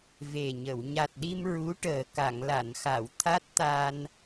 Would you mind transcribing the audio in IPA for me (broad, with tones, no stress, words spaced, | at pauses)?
ve˨˩ɲə˨˩˨w ɲa˨˩t̚ɗi˧m ɹu˧˥ʈəː˨˩ ka˨˩˨ŋla˨˩˨nxa˨˩˨w t̪ʰa˦˥t̚t̪a˧n